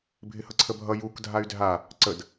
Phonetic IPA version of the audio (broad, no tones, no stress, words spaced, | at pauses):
bʱɪhʌǀʰəbʱʌ juk dʱay̯dʱa | ǀəd